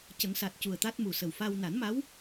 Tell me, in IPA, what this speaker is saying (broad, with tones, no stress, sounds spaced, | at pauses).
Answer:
c ə˨˩˦ ŋ s a˨˩ t̚ c u˨˩ ə̯ t̪ a˦˥ t̚ m u˨˩ s ə˨˩ w f a˧ w n a˨˩˦ n m a˧˥ w